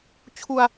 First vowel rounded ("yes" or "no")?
yes